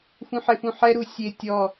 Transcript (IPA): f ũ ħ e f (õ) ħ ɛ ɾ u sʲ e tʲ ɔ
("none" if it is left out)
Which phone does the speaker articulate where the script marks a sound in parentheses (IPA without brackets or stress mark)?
ũ